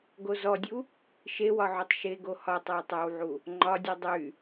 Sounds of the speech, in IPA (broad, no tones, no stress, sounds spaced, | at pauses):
ɡ o z ɔ dʲ u | ʃ e w ɒ ʕ u tˤ ʃ e ɡ o h ɒ tˤ ə˞ w tˤ æ w ʕ u | ŋ͡ǃ ɒ dʲ u dˤ y